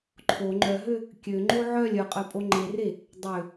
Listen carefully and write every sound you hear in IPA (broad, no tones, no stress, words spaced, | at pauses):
ǃʰo ŋ͡ǃœɦø | kʲøŋ͡ǃo ʕœlʲ œqʼœpʼo ŋ͡ǃere | dˤø